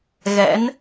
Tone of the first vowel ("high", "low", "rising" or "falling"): rising